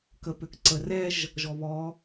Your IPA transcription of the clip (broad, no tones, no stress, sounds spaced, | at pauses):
k ə p ʏ k ǀ ə r ɛ ʒ | ʒ ɔ β ɔ